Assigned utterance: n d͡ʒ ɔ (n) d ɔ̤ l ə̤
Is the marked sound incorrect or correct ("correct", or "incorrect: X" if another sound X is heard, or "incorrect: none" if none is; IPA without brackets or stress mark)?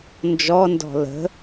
correct